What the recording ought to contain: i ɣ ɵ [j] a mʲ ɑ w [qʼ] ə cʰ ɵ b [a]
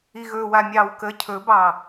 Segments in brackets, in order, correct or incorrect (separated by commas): incorrect, incorrect, incorrect